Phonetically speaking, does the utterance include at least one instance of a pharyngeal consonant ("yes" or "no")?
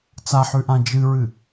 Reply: yes